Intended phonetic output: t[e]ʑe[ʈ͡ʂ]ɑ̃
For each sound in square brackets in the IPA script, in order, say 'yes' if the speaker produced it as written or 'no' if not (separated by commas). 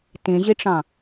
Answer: no, yes